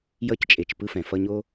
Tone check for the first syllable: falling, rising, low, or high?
high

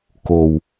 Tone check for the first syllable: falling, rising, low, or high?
low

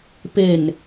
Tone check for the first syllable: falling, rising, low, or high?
low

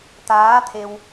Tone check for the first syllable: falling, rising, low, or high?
rising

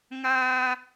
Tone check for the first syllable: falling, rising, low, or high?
high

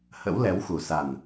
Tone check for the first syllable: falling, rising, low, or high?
rising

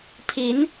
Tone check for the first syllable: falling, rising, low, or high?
rising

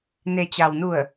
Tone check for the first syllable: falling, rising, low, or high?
low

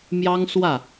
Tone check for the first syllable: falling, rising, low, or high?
high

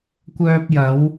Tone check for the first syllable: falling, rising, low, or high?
high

